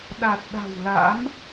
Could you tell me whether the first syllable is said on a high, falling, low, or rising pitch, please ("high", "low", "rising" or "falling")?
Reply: low